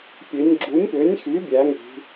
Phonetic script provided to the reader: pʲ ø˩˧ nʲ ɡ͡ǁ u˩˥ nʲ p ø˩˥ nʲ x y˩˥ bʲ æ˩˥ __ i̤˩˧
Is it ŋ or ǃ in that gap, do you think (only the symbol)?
ŋ